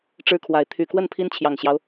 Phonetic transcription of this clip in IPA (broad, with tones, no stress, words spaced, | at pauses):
ʈ͡ʂɻ̩˦kʰwa˨˦ɪ̯ t̪ʰy˨˩ kwə˥˨npʰi˦nt͡ɕʰjɑ˨˩ŋɕjɑ˦ʊ̯